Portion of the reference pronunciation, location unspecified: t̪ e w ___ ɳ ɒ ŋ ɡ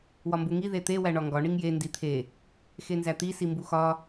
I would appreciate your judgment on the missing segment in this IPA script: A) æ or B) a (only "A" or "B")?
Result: A